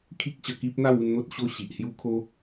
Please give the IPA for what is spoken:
kʰ i˦ k̚ ɕ ə˧ k i˦ p̚ n̪ a˥˧ w u˥˧ n n̪ o˦ t̚ ɕ o˦ ɕ i˨ ʔ h j u˦ kʰ o˦

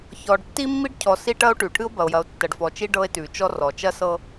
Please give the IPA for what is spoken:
ç ɔ˨ ɖ tː i˦ mː i˦ ɖ cʰ ɔ˨ s i˦ ʈ ɐ˦ o̯ ʈ ʉ˨ ʈʰ ɨ˦ o̯ b ɐ˨ o̯ j ɐ˨ o̯ tː ɐ˨ ɖ f ɔ˨ t͡ʃ i˦ ɖ ɤ˦ e̯ t ʉ˨ t͡ʃ ɔ˦ r ɔ˨ t͡ʃ ɐ˦ s ɤ˦

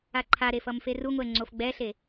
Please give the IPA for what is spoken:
a ǃʰ a ɾ e f ʌ m f e r u ŋʷ ɛ ŋ͡ǀ o f ɡ͡b ɛ ɬ e

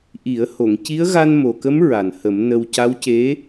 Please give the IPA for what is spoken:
ʔ i˨˩˦ ə̯ h o˨˩˨ ŋ c i˧˥ ə̯ ɣ a˧ n m o˨˩ k ə˧˥ m ɹ a˨˩ n h ə˨˩˦ m n ə˧ w c a˧˥ w c e˧˥

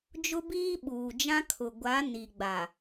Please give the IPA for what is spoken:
d͡ʒ ʊ˦ b iː˦ ɓ uː˨ d͡ʒ ã˦ kʰ ʊ˨ ɡʷ a˨˦ n i˨ ɡ͡b a˨

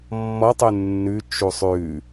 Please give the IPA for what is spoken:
mː ɔ tˤ ʉ nː ʉ t͡ʃ u sˤ ʉ

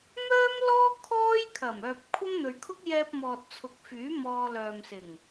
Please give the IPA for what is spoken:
m œː˥ m l ɔː˥ kʰ ɔː˥ j kʰ ɐ˨˩ m œː˨ p̚ kʷʰ ɐ˥ m n̪ ɵ˨ ɥ kʰ ʊ˥ k̚ j ɛː˧ p̚ m ɔː˨ t̚ t͡sʰ ʊ˨˥ k̚ f yː˨˥ m ɔː˧ l œː˨ m s ɪ˨˩ ŋ

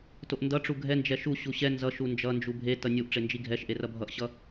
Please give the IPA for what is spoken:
t o ʔ n d ʌ ʈ͡ʂ u ɡʱ ɛ n d͡ʒ ɛ ʃ u ɕ u ɕ ɛ n z ʌ ʃ u n d͡ʒ ʌ n d͡ʒ u bʱ e t ʌ nʲ u ʔ ʈ͡ʂ e n d͡ʒ i ɡʱ ɛ ʃ ʔ e r ʌ bʱ ʌ ʔ ɕ ʌ

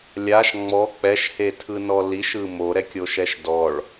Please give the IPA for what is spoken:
lʲ a ʃ ŋ͡m ɔ k͡p ɛ ʃ h e tʰ ɯ n ɔ l i ʃ ɯ m o ɾ ɛ kʲ o ʃ ɛ ʃ d ɔ ɭ

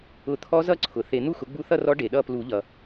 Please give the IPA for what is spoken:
ʊ˨˩˦ t̪ʰ ɔ˧˥ z ʌ˥˨ ǀʰ ʊ˩ θ e˨˩˦ n̪ u˥˨ x ʊ˩˥ ɡ͡b u˧˥ θ ʌ˥˨ r ɔ˧˥ ɖ e˩ ɗ ʌ˥˨ p l u˨˩˦ ʎ ʌ˩

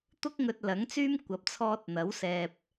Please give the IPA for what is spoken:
t̪ ʊ˥ k̚ ŋ ɵ˧ t̚ l ɐ˨˥ ŋ t͡s yː˥ m kʷ ɐ˨˥ p̚ t͡sʰ ɔː˧ t̚ n̪ ɐ˨˥ w s ɛː˧ p̚

